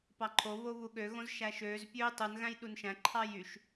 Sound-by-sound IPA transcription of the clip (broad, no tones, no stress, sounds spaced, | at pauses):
p ɑ ǃʰ o β o β u ɠ ø ɣ õ z ʃ æ ʃ øː z pʲ øː tˤ ɯ n ɣ æ̃ j ɗ u n ʃ æ̃ ǃʰ ɑ j y ʃ